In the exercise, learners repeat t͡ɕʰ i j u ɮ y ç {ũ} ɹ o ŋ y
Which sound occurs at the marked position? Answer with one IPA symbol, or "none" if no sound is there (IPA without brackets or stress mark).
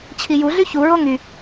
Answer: u